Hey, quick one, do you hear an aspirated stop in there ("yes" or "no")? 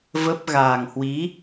no